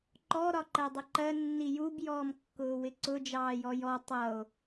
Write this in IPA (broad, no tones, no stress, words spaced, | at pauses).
ǃɔ ɾɒǃɜdˤʊǃɜ nːijub jɔːmkːʊːwɪǀʊ d͡ʒɑːjɔjɔ tˤʌo̯